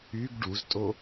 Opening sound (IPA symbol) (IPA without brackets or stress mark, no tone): y